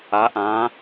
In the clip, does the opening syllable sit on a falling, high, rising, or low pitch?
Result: rising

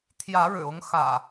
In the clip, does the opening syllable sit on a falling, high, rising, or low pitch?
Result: rising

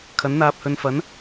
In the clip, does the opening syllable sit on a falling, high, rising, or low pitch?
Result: rising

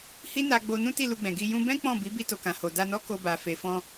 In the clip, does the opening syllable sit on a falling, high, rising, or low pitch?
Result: high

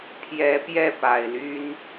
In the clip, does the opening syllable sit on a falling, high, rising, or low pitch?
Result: rising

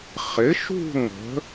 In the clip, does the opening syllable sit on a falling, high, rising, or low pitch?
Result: rising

